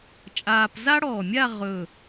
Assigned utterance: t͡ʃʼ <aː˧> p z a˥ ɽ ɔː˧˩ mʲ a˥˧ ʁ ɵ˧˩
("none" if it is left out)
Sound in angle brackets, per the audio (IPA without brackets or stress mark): aː˧